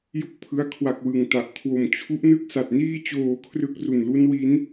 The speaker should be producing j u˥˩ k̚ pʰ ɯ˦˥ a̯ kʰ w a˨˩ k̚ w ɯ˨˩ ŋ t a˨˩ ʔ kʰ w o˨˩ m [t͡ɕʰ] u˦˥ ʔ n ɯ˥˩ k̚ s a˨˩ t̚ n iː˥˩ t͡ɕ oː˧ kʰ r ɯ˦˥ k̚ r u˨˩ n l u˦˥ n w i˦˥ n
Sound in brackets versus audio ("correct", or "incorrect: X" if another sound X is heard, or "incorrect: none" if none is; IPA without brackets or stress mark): correct